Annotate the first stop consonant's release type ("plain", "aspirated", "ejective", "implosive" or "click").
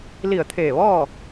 aspirated